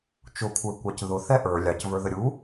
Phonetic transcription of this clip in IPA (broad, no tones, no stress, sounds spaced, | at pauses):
t͡ʃ ʊ kʷʰ ə˞ kʷ ɑ c ð ʊ θ ɛ ʔ ə˞ lʲ ɑ c v ə˞ ð ə ɾʲ u